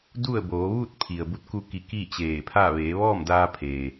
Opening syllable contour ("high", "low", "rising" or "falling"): falling